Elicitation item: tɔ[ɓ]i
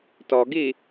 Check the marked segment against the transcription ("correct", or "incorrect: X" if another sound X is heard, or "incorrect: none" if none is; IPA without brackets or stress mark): incorrect: ɡ